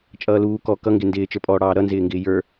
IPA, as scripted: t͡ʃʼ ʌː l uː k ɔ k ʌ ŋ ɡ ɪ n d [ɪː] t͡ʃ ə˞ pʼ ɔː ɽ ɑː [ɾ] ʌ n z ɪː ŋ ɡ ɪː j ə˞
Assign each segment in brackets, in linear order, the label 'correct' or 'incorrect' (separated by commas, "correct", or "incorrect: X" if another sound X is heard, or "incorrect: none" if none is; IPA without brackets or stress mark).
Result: correct, correct